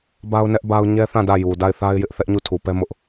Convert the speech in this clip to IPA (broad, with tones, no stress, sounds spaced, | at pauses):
b a˦ ʊ̯ n ɛ˦ ʔ b a˦ ʊ̯ ɲ ɛ˦ θ ã˦˨ d ä˦˨ j u˨ d a˦˨ ɪ̯ θ a˦ ɪ̯ j ɪ˦ ʔ θ ɛ˦ ʔ ɲ u˦˨ tʰ u˨ p ɛ˦ m ʊ˦ ʔ